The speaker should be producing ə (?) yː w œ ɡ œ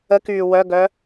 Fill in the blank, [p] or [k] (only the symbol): k